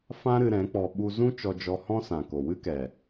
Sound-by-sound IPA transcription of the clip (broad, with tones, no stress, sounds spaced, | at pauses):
f ã˦ ɾ ɨ˧ ɾ ɛ̃˨˦ k͡p ɔ˧ ɓ u˧ z ũ˦ t͡ʃ ɔ˧ d͡ʒ ɔ˧ h ɔ̃˦ s ã˨ k o˨ w ɨ˦ k ɛ˨